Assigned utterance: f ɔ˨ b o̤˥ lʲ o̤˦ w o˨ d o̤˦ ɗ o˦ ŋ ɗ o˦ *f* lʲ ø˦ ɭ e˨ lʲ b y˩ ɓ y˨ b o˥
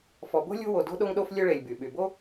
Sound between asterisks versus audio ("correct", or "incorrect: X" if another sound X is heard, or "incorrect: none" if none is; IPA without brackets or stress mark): correct